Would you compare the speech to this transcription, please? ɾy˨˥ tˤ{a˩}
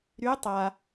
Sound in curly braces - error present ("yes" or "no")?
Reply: no